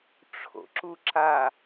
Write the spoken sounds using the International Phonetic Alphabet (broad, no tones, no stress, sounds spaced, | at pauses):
ʈ͡ʂʰ o̰ ǁ u ǁ a